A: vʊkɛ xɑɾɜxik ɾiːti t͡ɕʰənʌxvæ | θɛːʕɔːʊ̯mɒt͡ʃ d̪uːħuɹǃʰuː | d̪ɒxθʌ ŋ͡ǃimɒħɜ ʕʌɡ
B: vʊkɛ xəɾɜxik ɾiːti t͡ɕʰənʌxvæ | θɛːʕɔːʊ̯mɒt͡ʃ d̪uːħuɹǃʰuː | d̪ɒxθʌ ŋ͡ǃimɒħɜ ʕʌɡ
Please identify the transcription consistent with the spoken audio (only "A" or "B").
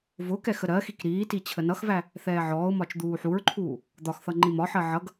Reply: B